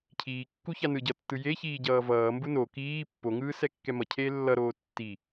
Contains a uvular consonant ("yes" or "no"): no